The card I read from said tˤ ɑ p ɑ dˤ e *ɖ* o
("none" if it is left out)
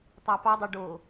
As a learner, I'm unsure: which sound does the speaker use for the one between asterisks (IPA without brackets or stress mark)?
ɖ